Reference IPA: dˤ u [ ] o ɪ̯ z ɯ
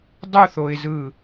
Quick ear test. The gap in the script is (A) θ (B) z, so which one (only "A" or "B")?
A